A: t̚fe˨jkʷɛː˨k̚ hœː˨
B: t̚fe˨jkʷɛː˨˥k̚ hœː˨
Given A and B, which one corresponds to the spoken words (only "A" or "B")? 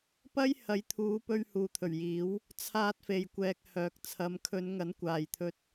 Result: A